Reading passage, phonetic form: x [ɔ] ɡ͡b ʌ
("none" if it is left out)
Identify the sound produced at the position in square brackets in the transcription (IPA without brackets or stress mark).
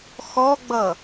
ɔ